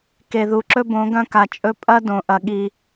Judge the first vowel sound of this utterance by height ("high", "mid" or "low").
mid